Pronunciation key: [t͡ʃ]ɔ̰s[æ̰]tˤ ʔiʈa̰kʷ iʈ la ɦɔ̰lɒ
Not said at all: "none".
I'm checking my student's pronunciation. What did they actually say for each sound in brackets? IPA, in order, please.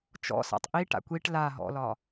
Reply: t͡ʃ, a̰

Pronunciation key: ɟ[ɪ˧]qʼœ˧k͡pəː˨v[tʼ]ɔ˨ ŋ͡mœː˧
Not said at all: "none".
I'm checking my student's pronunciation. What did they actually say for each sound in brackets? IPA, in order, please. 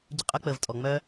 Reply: ɪ˧, tʼ

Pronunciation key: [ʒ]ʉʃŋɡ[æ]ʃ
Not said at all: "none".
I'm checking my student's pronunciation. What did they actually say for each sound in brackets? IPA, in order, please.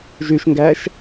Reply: ʒ, æ

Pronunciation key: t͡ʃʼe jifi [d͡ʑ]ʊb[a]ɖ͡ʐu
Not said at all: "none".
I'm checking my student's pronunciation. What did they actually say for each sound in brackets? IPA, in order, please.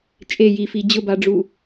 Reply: d͡ʑ, a

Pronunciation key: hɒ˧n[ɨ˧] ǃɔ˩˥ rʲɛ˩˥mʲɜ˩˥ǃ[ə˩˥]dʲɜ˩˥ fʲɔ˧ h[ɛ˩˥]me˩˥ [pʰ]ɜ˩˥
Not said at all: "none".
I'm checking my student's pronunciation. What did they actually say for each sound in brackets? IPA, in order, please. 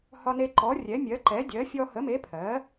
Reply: e˧, ɛ˩˥, ə˩˥, pʰ

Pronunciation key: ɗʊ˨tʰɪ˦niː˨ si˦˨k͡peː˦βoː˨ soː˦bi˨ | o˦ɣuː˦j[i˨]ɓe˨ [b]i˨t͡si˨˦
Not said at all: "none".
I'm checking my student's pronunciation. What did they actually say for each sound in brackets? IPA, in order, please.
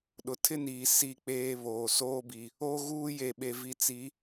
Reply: e˨, v

